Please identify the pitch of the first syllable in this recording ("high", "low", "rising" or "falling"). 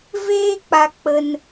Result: high